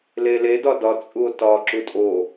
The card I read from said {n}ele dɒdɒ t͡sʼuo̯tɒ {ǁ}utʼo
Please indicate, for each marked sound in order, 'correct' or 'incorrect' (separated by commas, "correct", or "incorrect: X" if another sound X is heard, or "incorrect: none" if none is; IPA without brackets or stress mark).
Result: incorrect: l, correct